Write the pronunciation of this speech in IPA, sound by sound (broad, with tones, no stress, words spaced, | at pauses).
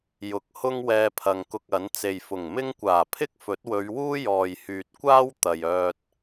jʊ˨˥k̚ hʊ˥ŋwɛː˧pʰɐ˨ŋkʊ˧k̚ ɐ˨˥n t͡se˨jfʊ˨˩ŋmɪ˥ŋ kʷaː˨˩pʰɪ˥k̚fɵ˨˥t̚wɵ˨˧ɥ wuː˥jɔː˨jhyː˨t̚kʷaː˥w t̪ɐ˨jœː˧t̚